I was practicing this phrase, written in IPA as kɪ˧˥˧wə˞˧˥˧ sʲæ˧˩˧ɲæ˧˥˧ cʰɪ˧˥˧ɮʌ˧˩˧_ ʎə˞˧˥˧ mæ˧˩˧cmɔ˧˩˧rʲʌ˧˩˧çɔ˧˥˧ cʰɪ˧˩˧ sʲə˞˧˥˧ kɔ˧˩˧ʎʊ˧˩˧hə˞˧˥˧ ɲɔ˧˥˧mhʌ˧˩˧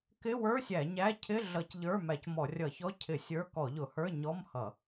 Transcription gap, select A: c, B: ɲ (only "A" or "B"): A